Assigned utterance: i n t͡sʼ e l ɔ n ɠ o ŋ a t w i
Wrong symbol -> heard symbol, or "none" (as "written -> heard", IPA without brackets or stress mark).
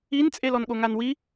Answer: t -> n